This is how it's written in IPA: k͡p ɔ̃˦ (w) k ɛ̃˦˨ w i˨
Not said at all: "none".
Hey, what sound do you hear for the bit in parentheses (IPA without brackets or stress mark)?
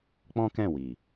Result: none